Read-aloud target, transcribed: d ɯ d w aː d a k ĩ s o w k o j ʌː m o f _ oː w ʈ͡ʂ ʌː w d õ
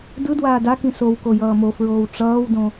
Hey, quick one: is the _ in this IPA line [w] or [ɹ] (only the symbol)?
ɹ